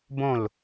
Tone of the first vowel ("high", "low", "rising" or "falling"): falling